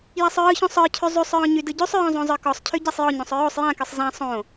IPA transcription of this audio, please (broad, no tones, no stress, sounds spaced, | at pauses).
j a sˤ ɹ ɯ ç õ sˤ ə˞ cʰ y zˤ y sˤ ɹ ɔ̃ ɲ y d ɯ ɟ ʉ sˤ ɹ ɔ̃ zˤ õ zˤ ə˞ k ɔ sˤ cʰ y ɟ a sˤ j ɔ ɲ õ sˤ ɹ o sˤ j ã k ɯ sˤ z ã sˤ õ